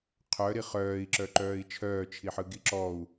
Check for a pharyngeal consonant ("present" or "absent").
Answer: present